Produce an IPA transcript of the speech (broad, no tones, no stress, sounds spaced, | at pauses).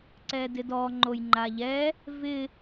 ǀ ɛ d ɪ d ɔ ŋ͡ǃ o j ŋ͡ǃ a ʎ ɛ | v ɪ